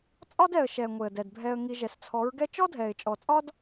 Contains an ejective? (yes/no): yes